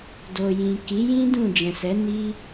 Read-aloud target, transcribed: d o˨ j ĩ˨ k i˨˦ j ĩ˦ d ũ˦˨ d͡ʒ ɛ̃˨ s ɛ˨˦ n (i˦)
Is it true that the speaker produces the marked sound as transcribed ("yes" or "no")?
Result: yes